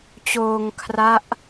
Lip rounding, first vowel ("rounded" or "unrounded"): rounded